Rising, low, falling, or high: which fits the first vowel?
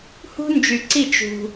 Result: high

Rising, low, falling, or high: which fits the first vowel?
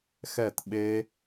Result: falling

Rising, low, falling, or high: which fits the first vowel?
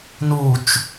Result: low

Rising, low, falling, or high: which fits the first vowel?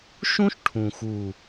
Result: high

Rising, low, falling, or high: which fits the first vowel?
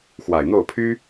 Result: low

